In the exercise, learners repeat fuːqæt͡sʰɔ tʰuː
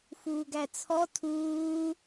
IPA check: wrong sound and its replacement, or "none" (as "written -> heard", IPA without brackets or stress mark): q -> ɡ